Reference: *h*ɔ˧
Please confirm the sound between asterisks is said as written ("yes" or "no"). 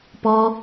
no